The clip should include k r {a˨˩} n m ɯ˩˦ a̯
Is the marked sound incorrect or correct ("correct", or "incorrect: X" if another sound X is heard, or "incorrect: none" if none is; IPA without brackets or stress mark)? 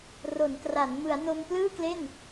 incorrect: a˩˦